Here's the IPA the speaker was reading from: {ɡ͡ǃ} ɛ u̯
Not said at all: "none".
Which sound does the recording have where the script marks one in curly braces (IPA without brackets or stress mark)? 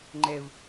ŋ͡ǃ